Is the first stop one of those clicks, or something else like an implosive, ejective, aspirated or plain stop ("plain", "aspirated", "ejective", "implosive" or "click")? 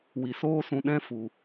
implosive